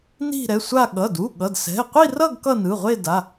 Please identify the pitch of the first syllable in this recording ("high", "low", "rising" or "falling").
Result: falling